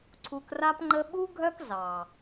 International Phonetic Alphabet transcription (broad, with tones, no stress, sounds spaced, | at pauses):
ǀʰ u˧ k r a˦ p ŋ͡ǃ ə˦ ɓ u˦ ɡʱ œ˦ k z ɑ˨